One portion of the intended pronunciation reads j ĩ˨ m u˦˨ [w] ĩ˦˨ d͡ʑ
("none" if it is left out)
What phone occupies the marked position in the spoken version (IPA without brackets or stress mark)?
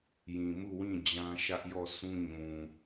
w